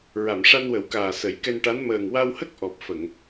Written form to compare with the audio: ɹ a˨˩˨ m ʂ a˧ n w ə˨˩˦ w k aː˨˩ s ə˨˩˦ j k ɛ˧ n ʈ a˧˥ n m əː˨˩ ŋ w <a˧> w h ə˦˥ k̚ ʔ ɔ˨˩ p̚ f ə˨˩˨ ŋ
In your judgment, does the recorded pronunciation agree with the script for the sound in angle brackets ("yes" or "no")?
yes